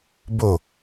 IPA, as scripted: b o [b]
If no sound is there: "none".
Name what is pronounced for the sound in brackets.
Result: none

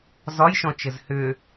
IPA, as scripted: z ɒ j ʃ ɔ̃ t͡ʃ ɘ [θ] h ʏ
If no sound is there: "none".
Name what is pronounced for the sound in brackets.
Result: z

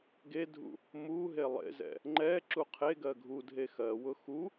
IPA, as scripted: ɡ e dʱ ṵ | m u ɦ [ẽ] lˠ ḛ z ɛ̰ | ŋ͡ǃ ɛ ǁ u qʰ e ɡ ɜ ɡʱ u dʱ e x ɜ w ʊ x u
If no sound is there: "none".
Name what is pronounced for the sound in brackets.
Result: e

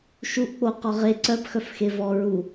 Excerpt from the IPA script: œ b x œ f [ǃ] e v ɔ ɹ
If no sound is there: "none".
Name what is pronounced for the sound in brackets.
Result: x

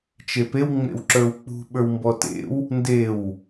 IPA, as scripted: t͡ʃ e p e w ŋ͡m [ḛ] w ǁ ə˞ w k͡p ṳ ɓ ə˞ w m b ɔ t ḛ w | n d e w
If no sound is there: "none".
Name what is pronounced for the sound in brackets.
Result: ḛ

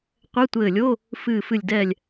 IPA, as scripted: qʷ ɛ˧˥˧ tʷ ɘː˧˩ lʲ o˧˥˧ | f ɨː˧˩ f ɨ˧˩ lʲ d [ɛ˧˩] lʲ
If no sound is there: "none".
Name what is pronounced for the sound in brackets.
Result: ɛ˧˩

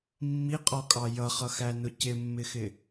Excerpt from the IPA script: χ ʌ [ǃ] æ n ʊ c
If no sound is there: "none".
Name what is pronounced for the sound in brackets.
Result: x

